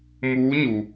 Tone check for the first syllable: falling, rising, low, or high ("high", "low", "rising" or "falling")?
rising